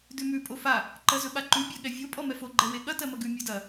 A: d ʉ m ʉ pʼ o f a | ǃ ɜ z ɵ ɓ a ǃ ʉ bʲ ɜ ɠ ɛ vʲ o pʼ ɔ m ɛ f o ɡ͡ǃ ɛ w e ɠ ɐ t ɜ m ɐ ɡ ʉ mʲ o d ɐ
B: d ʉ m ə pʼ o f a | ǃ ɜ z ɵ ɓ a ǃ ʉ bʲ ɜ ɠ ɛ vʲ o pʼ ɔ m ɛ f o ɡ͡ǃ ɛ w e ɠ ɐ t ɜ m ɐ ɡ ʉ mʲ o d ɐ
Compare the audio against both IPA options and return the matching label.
A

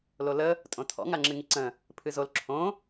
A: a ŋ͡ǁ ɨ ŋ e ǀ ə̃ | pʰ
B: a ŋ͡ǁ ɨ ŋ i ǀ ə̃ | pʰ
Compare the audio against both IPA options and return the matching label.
B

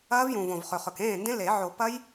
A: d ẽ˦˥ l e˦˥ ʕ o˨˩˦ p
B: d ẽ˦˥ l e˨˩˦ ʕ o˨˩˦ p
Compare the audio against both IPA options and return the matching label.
B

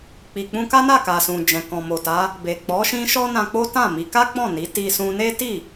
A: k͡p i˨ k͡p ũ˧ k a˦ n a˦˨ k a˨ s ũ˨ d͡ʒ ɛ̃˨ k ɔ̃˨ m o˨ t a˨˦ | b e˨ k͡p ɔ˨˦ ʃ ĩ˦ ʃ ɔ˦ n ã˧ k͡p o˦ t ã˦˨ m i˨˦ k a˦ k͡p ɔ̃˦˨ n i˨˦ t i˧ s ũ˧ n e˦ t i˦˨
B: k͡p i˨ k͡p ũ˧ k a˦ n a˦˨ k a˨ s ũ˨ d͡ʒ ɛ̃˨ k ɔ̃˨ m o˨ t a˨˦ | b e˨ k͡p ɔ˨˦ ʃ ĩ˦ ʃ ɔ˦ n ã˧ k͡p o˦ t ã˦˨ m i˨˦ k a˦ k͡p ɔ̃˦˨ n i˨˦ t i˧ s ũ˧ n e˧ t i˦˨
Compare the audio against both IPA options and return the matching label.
A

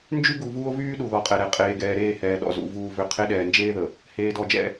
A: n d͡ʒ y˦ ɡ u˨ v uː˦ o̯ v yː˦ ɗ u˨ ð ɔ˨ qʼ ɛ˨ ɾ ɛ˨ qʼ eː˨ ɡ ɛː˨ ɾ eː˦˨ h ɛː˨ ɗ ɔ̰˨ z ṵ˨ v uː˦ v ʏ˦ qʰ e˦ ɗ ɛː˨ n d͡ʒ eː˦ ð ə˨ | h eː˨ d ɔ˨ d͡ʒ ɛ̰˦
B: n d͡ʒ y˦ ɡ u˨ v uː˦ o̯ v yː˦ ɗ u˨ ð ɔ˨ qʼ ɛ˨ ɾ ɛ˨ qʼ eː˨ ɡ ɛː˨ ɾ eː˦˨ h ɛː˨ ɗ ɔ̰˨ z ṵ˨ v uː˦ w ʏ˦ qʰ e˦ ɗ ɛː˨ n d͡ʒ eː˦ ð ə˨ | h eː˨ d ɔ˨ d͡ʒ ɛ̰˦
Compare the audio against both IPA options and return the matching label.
A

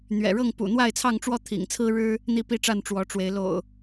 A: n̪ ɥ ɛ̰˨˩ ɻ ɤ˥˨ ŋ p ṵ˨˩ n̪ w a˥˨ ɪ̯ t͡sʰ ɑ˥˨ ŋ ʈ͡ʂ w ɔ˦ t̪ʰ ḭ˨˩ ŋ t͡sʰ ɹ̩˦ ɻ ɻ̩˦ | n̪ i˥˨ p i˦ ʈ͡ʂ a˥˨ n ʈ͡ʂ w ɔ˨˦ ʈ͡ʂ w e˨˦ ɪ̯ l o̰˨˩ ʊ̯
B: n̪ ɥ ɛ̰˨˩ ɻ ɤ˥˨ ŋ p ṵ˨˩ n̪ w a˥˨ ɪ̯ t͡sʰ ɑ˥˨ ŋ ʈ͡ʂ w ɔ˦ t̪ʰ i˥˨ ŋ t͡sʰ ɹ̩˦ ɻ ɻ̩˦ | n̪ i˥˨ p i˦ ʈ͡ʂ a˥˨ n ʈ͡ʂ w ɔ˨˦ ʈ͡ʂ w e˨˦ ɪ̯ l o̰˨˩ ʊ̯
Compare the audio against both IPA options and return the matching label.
A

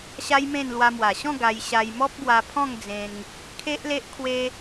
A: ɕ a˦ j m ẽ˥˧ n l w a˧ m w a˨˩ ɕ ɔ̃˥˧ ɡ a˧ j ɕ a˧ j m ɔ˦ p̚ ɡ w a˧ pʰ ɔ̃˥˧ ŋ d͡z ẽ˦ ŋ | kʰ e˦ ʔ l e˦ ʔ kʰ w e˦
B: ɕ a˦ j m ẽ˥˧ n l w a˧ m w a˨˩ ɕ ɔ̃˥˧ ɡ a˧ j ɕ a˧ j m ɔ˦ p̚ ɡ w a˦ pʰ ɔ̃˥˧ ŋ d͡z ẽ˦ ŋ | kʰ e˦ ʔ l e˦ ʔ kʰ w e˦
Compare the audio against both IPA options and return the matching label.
A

